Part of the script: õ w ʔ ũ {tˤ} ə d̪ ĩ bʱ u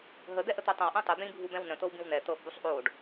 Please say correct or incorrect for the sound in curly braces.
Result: correct